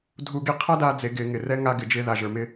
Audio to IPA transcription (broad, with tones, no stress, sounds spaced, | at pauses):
dʱ u˧ ɡ i˧ qʰ a˥ d aː˧ d͡z e˩˧ ɡ ɪː˩˧ ŋ ɪ˩ r ɛ˥ ŋ a˧ ɡ ɪ˩ d͡ʒ ɪː˧ ð a˩ ʒ ə˞˩ m ɪ˧